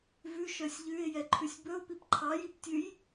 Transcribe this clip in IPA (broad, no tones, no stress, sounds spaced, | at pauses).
v ʉ ʃ œ sʲ ʎ ʉ ɪ̯ j ɛ ǃʰ ʉ sʲ b ɵ ʊ̯ p i p ǃʰ ɑ j i p tʲ ʉ j